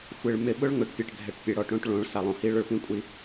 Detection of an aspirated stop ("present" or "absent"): absent